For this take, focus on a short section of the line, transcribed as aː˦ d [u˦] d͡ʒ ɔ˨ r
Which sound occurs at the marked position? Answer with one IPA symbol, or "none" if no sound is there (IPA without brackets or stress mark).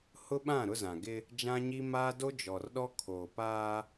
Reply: o˦